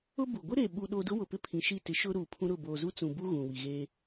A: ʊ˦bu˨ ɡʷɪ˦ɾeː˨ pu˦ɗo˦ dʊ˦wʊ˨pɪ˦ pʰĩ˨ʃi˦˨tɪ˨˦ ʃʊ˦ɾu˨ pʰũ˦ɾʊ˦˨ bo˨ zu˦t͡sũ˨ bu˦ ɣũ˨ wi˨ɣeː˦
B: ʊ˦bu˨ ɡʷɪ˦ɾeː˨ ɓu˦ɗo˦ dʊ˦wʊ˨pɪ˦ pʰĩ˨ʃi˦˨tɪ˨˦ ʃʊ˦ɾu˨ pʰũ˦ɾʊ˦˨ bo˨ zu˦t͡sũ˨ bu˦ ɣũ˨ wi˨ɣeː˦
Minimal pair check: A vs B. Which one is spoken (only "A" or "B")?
B